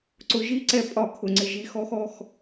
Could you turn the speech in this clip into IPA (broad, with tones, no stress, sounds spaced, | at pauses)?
ǀ ʊ˨˦ ʒ i˧˥˧ ǀ ɛ˨˦ pʼ ɒ˨˩˦ kʰ ʊ˩ ŋ͡ǀ ɪ˩ ʒ i˨˩˦ x ɔ˧˥˧ x ɔ˩˧˩ x